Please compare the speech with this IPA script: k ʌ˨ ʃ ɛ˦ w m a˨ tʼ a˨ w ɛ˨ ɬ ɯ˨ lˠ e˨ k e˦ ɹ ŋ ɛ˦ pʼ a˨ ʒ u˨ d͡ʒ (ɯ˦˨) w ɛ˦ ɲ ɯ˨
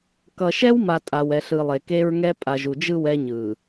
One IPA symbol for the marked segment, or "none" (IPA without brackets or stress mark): ɯ˦˨